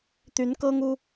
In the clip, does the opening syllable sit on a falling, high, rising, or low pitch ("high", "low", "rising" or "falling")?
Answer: rising